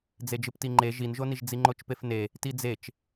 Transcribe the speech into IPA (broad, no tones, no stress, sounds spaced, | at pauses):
d͡z e d͡ʒ ɯ p t i ŋ͡ǃ e ʒ i n ʒ o n i ʒ d͡z i ŋ͡ǃ o t͡ʃ p e f n e | t i d͡z e t͡ʃ